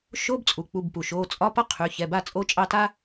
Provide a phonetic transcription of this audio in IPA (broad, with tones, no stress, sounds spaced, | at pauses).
ʃ o˧˥˧ b t͡sʼ u˩ k͡p u˩˧˩ b p u˩ ʃ oː˩˧˩ t͡sʼ ɒ˧˥˧ p ʌ˥ qʰ y˩˧˩ ç ɛ˩˧˩ b a˥˩ t͡sʼ o˧˥˧ t͡ʃʼ ɑ˥˩ t a˥